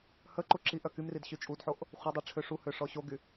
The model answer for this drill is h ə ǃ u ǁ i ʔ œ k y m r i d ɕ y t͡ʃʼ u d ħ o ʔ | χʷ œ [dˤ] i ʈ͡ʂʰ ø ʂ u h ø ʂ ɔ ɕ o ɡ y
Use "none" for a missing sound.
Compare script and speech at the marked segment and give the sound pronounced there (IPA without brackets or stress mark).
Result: dˤ